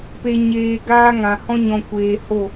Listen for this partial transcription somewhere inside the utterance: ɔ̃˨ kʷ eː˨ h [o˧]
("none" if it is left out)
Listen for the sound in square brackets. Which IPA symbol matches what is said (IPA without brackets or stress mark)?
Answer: o˦˨